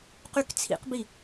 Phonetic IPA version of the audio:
q y k t͡sʰ ḭ q b i

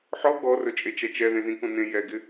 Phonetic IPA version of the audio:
ħ ɔ ɡ ɔ r ɵ t͡ʃʼ e t͡ʃ ɛ t͡ʃ ɛ ð ẽ z ĩ k õ n ẽ j ɛ ɡ ɪ

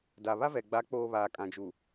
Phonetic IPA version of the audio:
d a˨ β a˦ v ɛ˨ ɡ͡b a˨˦ k͡p oː˨ β aː˨ kʼ ã˨ d͡ʒ u˨

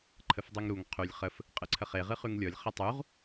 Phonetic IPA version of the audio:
ǃʰ ə f dˤ ʉ ŋ ɾ u ŋ qʰ ʉ lʲ χ ə f | qʼ ɨ ǀʰ ə χ e ʁ ɨ χ ʉ ŋ lʲ ɔ lʲ χ ɘ tˤ u ʁ

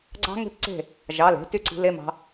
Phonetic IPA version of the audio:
ɡ͡ǀ ɑ̤˦˥ ŋ e̤˦˥ p ǀ e̤˥˩ | ʒ ɑ˩˧˩ l e̤˩˥ t y˥˩ ǀ i̤˩˥ l e˧˥˧ m ɑ̤˦˥

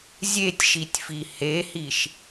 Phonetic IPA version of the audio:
zʲ e tʲ ʃ i tʲ f i h e h i ʃ

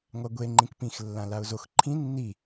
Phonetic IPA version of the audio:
ŋʷ a ɡʷ e ŋ͡ǃ ĩ k p ĩ x lː ã l a ʊ̯ z o x ǃʰ ĩ nː i

